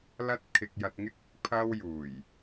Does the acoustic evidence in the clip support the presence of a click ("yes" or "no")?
no